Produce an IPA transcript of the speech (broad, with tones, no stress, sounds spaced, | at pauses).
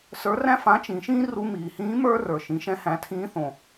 s ə˞˧˥ r æ̃˥ f ã˧˥ t͡ʃ ĩ˩˧ ʃ ĩː˥ r u˧ m iː˩ h ĩː˧˥ m ə˞˥ r ə˞˩ ʃ ĩ˩˧ ʃ ɛ̃˧ h æ̃˩˧ tʰ ĩː˧˥ θ õ˩